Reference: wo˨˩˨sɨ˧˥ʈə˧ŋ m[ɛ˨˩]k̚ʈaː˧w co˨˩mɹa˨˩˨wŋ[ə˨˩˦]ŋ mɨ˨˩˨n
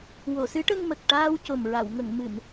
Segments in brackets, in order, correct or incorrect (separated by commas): incorrect, incorrect